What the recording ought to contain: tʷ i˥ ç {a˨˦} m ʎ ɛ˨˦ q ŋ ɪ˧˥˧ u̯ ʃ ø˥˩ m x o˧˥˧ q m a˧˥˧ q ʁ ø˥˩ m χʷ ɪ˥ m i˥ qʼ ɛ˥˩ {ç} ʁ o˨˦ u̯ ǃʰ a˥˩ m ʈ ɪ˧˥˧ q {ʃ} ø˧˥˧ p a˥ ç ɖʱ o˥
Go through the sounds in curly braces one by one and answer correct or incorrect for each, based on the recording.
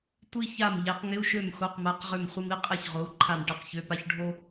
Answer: incorrect, correct, incorrect

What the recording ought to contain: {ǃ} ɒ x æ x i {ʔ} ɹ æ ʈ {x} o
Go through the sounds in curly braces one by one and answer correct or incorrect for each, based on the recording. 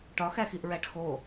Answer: incorrect, correct, correct

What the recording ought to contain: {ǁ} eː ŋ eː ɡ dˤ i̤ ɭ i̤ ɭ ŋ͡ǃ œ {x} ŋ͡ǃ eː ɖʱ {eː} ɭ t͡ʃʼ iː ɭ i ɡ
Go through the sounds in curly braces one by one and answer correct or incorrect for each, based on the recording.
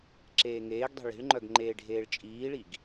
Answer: correct, incorrect, correct

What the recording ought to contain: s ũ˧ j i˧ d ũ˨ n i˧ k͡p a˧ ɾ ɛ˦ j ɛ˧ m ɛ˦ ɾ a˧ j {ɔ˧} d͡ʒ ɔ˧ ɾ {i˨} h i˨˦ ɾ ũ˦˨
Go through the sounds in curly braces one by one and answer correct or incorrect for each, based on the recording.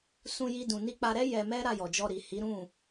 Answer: incorrect, correct

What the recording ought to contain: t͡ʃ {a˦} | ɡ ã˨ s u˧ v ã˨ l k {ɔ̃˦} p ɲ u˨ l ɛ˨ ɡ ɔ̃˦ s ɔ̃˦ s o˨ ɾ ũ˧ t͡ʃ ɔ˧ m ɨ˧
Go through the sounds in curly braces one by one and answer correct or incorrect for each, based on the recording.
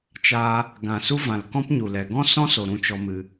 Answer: incorrect, correct

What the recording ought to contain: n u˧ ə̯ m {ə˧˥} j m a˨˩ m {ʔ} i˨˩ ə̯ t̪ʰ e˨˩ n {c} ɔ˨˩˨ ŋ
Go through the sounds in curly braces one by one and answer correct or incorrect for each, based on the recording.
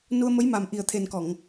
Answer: correct, correct, incorrect

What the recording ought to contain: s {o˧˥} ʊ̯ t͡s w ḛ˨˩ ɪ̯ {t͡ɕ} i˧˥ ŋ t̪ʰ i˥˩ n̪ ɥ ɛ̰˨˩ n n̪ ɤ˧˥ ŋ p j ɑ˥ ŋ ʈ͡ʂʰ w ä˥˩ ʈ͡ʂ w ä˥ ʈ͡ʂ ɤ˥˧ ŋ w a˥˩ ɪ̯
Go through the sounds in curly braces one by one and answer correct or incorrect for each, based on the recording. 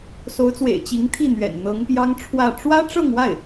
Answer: correct, correct

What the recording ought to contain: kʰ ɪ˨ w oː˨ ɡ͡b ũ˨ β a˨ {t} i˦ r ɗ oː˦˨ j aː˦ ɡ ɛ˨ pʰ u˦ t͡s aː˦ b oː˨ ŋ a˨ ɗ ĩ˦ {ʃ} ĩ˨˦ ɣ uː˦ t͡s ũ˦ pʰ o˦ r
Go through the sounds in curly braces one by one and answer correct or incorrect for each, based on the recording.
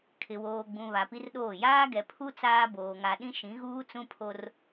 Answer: incorrect, correct

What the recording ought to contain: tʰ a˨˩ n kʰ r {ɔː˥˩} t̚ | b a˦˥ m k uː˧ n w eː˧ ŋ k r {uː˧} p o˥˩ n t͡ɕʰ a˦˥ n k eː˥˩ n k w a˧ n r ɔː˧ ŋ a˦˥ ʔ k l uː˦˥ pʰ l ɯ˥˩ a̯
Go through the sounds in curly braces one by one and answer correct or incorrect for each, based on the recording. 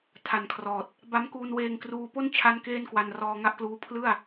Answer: incorrect, correct

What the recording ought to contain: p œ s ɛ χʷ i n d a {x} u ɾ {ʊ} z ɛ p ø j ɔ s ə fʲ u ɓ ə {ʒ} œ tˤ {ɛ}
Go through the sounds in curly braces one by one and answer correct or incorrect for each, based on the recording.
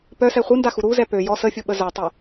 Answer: correct, incorrect, incorrect, correct

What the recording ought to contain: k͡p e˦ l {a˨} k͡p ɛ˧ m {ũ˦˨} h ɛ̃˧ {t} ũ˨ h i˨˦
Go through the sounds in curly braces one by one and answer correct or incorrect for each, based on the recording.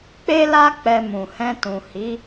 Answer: incorrect, incorrect, correct

